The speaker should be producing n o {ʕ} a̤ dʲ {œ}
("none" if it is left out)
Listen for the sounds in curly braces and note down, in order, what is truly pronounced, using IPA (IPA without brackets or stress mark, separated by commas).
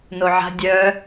ʕ, œ